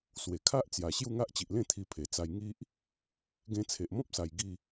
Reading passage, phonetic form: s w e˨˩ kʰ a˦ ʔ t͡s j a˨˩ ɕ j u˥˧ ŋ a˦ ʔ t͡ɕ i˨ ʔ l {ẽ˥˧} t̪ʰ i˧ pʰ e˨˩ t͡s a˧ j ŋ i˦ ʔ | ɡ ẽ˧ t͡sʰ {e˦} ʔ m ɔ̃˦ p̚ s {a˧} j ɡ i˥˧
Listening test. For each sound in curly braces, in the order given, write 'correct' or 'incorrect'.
correct, incorrect, incorrect

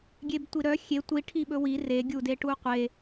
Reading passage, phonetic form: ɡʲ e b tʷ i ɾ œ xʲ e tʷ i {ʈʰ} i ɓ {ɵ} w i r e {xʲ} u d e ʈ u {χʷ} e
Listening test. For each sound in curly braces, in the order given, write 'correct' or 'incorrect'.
correct, correct, incorrect, incorrect

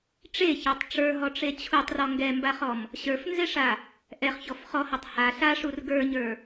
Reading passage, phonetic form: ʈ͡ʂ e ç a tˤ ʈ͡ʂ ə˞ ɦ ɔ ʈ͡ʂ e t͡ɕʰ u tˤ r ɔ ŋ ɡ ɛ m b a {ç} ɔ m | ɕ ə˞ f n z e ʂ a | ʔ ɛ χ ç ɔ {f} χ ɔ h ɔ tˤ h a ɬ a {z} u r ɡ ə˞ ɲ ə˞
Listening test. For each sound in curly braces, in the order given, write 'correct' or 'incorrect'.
incorrect, correct, incorrect

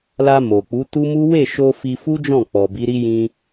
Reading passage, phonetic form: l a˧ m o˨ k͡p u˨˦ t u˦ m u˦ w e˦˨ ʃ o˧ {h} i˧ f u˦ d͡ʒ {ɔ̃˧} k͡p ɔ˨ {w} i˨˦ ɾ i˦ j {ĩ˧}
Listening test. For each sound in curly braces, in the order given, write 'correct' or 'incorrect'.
incorrect, incorrect, incorrect, correct

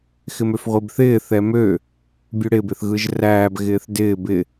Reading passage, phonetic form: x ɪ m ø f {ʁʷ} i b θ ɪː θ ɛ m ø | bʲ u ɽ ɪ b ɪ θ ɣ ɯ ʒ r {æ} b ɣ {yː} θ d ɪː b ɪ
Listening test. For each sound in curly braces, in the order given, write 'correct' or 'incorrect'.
correct, incorrect, incorrect

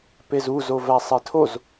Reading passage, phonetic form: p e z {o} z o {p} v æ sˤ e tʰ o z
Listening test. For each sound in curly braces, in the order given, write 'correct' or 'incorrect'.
incorrect, incorrect

